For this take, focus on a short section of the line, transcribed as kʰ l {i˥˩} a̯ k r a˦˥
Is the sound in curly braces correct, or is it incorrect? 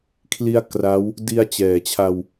incorrect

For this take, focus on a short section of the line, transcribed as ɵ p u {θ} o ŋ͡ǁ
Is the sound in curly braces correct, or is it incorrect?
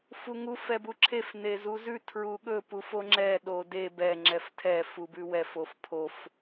incorrect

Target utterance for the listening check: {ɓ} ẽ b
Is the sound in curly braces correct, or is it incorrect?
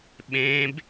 correct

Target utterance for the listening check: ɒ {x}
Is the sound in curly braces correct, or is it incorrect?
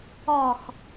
correct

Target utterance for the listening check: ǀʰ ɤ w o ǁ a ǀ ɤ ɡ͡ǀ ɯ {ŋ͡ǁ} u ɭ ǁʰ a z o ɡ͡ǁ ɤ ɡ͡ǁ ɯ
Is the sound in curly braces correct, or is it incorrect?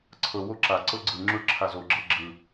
correct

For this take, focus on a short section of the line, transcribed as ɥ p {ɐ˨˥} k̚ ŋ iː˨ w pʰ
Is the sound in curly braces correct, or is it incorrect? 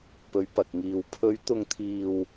incorrect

